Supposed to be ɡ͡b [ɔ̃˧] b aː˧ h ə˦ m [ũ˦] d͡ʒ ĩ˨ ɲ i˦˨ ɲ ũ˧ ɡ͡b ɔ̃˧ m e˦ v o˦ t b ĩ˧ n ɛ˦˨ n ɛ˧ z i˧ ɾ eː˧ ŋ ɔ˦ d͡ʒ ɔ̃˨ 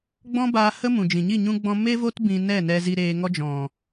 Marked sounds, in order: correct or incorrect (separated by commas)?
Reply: incorrect, incorrect